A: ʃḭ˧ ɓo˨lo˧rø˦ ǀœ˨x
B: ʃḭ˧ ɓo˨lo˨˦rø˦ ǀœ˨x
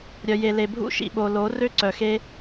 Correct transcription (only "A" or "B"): B